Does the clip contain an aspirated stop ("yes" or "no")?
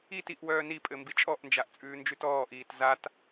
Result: no